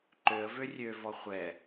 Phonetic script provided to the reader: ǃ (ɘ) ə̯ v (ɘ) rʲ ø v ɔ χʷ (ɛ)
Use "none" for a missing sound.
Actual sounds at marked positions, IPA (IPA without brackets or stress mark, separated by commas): ø, ø, ɛ